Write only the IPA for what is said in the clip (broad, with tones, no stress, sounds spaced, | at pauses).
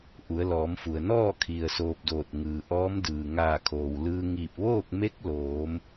ʔ u˩˧ ə̯ l ɔː˩˧ m f u˩ ə̯ n ɔː˥˨ kʰ i˩ ə̯ s oː˧ p̚ d oː˧˩ t̚ ŋ ɯː˩ ʔ ɔː˧˥ m d ɯː˩ ŋ aː˧˩ kʰ oː˩ w l ɯː˧ ŋ iː˧˩ p̚ ʋ oː˥˨ k̚ m e˧˥ k̚ l oː˩˧ m